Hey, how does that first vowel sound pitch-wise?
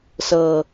low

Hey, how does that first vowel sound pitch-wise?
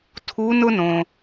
rising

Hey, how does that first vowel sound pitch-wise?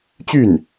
falling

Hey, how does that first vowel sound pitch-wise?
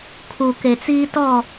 low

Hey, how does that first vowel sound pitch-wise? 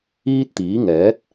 high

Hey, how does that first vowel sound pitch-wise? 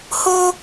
high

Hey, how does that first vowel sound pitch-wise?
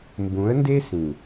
rising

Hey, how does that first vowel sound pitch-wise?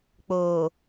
low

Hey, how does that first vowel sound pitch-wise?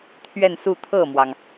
falling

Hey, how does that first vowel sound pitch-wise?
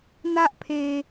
high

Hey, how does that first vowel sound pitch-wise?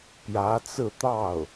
rising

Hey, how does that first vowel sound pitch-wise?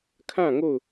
falling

